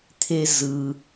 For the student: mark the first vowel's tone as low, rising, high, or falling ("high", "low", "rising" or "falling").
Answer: low